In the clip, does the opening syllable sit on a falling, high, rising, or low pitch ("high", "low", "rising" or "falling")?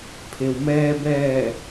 low